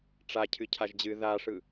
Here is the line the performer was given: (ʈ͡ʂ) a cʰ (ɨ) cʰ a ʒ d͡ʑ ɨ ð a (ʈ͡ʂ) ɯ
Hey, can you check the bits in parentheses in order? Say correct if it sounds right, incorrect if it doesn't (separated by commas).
correct, correct, incorrect